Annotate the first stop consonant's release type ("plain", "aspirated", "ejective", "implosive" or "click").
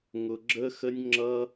click